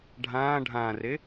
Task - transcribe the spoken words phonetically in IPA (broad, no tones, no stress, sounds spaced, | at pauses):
ɖʱ ãː ɖʱ ãː r e